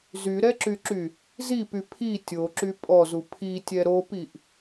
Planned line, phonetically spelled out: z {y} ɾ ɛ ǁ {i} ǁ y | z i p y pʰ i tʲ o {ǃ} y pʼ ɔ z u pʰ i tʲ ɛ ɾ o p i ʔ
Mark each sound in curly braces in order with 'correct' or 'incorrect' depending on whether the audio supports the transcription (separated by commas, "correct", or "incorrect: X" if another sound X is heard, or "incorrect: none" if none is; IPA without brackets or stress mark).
correct, incorrect: y, incorrect: ǁ